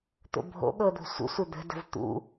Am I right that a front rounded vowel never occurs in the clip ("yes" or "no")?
yes